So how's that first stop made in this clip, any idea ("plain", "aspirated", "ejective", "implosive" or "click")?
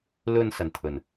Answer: aspirated